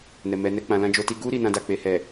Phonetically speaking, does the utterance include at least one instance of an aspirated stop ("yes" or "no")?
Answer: no